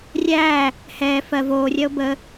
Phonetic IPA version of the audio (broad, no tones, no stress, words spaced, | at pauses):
rʲæː | hɛː fɜ voːrʲɜo̯ bə